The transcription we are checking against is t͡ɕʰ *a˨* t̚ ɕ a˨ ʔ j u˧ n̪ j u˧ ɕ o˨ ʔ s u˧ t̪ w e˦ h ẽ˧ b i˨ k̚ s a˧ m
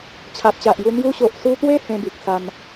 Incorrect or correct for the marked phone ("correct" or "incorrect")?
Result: correct